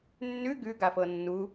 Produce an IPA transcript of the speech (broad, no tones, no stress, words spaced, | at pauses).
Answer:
nːʉ ɡʉɡafɤ nːu